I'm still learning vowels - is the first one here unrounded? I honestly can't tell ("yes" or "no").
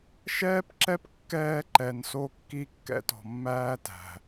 yes